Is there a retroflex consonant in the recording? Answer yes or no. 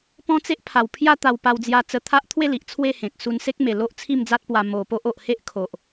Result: no